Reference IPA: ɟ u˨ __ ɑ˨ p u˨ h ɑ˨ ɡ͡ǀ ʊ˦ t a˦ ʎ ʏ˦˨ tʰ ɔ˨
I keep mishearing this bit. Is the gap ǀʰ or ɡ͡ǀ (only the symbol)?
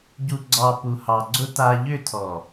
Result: ɡ͡ǀ